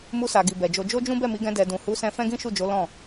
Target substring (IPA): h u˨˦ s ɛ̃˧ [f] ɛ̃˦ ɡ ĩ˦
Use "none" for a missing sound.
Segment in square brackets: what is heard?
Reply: f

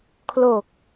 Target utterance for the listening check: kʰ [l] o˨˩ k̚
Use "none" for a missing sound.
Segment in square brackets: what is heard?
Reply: l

